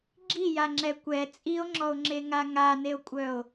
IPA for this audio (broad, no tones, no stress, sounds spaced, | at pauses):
ɡ͡ǁ i j a ŋ͡ǁ ɛ kʷ ɛ t͡sʼ i o̯ ŋ͡ǁ ɔ o̯ ŋ͡ǁ e ŋ a ŋ a n e o̯ kʷʼ œ o̯